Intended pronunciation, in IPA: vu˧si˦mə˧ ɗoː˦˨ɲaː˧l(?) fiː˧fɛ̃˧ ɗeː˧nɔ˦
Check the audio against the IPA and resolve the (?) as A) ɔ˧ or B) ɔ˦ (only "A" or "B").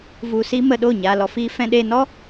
A